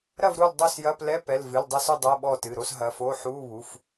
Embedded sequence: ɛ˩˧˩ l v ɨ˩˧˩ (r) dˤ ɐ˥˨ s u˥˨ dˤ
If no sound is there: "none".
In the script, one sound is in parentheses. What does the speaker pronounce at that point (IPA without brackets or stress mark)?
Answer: l